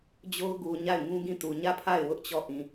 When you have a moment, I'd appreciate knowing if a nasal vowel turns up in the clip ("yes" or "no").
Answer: yes